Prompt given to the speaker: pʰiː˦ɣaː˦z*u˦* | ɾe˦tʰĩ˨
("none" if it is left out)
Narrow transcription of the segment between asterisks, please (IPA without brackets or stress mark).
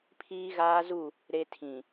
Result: u˦˨